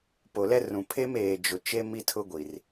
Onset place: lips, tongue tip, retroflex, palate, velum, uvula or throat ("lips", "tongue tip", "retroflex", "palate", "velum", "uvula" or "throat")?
lips